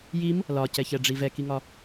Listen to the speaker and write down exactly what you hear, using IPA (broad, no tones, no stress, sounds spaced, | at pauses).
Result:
j i m | l ɒ c ɛ ç ɛ ɖ͡ʐ i v ɛ k i ŋ ɒ